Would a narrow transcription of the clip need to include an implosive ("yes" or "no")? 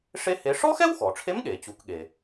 yes